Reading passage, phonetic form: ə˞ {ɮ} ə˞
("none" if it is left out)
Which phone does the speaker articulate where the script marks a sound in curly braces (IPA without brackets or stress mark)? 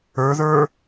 ð